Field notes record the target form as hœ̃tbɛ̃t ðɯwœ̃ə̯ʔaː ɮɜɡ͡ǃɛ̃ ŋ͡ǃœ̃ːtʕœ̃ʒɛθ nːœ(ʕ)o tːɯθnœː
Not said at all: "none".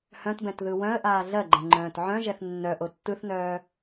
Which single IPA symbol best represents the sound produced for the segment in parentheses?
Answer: ʔ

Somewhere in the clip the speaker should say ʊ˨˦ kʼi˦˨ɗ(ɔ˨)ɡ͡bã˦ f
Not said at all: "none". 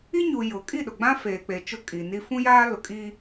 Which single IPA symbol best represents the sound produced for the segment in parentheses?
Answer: ʊ˨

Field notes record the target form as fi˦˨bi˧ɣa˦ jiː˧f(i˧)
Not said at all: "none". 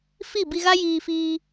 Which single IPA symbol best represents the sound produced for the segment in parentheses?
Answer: iː˧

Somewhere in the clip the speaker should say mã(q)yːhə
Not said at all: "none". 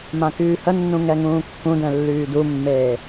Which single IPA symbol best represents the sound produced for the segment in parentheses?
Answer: k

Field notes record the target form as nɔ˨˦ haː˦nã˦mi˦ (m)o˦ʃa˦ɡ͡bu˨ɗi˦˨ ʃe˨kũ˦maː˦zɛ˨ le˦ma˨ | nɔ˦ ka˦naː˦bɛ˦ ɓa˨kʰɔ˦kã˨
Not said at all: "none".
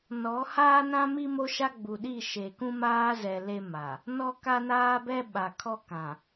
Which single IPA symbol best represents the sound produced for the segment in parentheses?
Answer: m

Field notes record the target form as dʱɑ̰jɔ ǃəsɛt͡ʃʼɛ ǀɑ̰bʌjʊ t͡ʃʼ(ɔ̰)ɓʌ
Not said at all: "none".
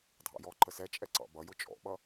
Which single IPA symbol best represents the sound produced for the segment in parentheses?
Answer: ɔ̰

